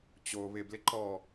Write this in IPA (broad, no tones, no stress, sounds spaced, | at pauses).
t͡ɕ o β ɪ b l ɪ ǃ ɔ